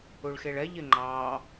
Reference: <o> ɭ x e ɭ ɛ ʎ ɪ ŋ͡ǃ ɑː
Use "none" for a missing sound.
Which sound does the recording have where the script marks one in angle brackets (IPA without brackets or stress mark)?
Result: u